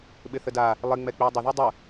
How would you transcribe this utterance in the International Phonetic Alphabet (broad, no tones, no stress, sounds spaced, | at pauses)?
ɓ ɪ θ ə d a | lˠ ɪ ŋ͡m ɛ k͡p i dˤ ə ð u dˤ ə